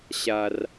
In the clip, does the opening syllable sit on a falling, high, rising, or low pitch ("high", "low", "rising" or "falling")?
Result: low